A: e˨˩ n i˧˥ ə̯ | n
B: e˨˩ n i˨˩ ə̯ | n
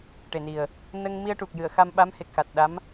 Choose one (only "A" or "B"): B